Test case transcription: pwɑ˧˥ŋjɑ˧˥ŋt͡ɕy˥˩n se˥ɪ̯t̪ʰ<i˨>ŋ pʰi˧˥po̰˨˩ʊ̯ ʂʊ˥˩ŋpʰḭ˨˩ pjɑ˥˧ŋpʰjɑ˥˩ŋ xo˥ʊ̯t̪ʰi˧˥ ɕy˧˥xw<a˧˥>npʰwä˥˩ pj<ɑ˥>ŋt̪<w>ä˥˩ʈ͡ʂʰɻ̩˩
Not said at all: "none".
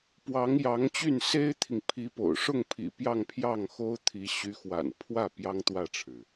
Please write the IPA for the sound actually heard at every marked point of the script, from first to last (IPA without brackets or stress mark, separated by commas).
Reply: i˨, a̰˨˩, ɑ˥, w